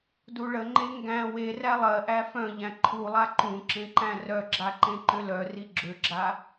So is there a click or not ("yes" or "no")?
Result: yes